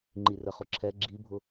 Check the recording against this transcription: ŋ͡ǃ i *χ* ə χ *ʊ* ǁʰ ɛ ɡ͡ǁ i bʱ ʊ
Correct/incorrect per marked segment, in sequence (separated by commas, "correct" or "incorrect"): incorrect, correct